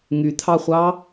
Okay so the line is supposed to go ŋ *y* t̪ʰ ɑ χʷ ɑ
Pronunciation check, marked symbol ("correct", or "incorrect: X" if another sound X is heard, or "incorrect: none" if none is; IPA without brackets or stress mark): correct